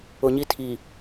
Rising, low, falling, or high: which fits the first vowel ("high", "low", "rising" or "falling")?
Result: low